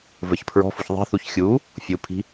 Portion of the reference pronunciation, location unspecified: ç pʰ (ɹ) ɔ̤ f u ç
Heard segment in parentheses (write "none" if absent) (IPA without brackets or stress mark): ɹ